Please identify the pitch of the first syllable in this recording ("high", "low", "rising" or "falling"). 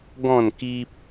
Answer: falling